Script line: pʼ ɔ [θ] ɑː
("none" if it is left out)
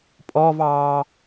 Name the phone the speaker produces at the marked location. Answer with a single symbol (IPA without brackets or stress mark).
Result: v